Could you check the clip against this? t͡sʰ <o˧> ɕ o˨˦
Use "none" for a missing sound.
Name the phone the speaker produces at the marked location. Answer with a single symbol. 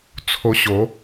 o˧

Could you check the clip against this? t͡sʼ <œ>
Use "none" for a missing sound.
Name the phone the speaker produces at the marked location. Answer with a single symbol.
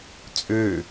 ø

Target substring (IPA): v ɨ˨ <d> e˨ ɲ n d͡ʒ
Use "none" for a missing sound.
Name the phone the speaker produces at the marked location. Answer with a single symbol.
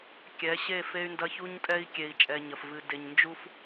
d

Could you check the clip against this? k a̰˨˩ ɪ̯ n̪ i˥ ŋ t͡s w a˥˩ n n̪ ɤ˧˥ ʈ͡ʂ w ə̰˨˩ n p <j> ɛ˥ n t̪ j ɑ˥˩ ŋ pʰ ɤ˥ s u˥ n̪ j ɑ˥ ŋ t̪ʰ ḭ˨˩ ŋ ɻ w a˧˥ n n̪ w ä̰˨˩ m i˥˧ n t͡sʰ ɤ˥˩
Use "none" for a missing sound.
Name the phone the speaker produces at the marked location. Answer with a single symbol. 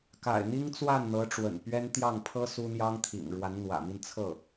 ɥ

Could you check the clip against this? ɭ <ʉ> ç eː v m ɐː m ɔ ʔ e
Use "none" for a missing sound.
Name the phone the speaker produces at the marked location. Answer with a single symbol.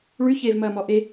ʉ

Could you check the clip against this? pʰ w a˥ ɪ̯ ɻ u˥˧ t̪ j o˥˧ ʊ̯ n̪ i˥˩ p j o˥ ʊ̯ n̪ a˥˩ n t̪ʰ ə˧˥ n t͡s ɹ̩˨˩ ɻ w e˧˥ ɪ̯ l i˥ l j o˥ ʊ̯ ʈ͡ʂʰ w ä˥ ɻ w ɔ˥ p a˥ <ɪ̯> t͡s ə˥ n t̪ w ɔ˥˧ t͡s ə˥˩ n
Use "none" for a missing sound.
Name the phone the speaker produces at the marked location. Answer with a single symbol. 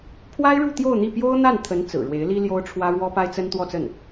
ɪ̯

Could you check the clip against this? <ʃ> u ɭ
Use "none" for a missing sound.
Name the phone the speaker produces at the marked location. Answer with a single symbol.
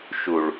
ʃ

